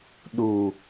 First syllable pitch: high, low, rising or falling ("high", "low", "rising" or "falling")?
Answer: low